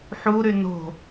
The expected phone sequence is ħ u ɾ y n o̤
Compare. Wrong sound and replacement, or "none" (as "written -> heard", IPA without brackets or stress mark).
none